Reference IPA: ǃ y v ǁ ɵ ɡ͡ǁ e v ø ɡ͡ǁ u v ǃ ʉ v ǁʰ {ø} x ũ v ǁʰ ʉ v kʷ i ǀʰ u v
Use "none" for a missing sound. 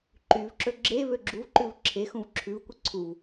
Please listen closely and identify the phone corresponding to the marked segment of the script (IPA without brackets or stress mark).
e